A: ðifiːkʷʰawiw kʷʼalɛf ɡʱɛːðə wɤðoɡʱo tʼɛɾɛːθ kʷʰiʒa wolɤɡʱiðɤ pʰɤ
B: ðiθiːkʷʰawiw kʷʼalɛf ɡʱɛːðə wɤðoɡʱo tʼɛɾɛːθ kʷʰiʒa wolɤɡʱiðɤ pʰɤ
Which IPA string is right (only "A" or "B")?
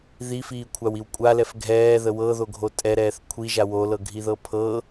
A